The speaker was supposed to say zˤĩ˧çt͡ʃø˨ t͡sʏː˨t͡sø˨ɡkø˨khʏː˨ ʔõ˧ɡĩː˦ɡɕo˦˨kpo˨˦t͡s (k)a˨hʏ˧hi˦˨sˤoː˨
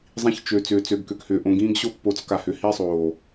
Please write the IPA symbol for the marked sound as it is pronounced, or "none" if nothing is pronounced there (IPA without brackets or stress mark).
k